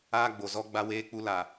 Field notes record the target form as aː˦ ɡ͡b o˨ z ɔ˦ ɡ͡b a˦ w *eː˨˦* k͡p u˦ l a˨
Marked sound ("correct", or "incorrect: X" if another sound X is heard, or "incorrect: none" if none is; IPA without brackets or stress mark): incorrect: eː˦